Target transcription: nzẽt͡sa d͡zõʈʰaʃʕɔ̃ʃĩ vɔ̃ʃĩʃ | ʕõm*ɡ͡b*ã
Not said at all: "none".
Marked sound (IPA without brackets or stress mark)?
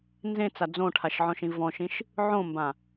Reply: b